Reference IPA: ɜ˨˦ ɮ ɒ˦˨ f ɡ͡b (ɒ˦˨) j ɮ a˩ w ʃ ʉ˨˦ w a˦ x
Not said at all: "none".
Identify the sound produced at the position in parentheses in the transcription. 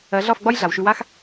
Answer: ɒ˦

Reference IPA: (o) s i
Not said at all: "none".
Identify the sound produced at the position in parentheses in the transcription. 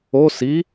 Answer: o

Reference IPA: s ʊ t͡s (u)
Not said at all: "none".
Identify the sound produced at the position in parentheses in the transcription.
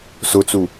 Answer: u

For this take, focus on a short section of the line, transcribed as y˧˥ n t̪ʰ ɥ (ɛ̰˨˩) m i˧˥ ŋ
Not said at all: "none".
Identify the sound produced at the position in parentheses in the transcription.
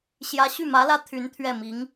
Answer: ɛ˥˩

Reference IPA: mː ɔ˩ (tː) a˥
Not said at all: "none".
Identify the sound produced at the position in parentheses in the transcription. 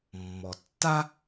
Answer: tː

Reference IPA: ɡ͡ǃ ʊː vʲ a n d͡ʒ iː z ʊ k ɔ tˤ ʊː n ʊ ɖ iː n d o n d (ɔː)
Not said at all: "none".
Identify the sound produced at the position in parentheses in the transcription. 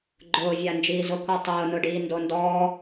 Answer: ɔː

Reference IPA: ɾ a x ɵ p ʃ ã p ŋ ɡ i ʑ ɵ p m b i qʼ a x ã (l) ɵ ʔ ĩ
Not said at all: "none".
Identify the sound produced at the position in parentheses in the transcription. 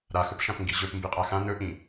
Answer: n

